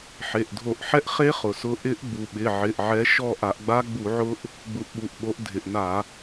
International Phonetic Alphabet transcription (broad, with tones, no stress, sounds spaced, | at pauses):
ħ e˩˧˩ ʔ dʱ o˧˩˧ ʔ ħ ɛ˦˥ ʔ χ e˦˥ χ ʊ˩ s ʊ˨˦ ʔ ɪ˦˥ ʔ ɡ͡b u˩ ɓ ɪ˩˧˩ ʕ ɪ˩˧˩ ʔ ʕ ɛ˨˦ ʃ ɔ˦˨ ʔ a˧˩˧ ʔ ɡ͡b a˦˥ ɡ͡b u˧˩˧ ʕ ʊ˦˥ ʔ | ɡ͡b u˨˦ ʔ ɓ u˩˧˩ ʔ ɓ o˨˦ ʔ dʱ ɪ˩ ʔ n a˧˩˧